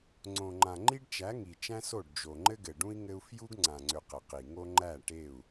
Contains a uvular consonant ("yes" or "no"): yes